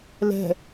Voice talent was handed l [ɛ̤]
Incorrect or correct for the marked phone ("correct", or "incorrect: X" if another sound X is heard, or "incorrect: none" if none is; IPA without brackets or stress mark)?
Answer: correct